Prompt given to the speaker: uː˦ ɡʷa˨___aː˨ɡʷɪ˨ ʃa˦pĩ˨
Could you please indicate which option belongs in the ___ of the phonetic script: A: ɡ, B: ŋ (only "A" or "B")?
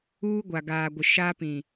A